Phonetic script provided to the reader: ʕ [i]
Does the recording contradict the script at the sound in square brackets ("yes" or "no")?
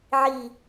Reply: no